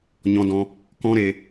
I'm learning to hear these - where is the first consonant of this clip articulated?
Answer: palate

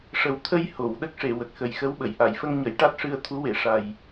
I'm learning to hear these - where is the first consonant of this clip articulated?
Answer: retroflex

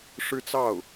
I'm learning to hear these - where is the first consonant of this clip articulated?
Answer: retroflex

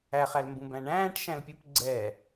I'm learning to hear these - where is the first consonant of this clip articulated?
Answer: uvula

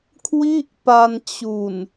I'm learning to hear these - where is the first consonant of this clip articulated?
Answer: velum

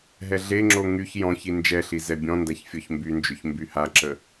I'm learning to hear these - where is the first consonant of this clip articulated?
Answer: throat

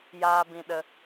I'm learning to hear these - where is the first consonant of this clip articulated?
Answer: palate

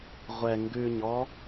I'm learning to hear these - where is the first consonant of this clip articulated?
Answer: uvula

